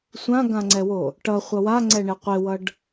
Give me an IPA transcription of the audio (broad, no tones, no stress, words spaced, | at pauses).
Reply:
sʷãɡãŋ͡ǀɛwo | ʈʌχʷʌ waŋ͡ǀɛɳe qʷewʌɖ